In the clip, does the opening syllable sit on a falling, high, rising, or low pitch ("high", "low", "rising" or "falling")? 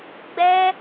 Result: high